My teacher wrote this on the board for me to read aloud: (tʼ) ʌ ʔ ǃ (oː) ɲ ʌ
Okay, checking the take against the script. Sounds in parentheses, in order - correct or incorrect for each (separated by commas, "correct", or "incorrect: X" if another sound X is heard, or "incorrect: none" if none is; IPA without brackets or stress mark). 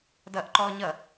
incorrect: d, incorrect: ɔː